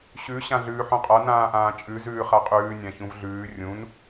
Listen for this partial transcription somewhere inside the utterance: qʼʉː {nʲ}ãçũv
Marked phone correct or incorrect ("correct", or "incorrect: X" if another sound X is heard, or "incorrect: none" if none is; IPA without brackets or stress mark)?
correct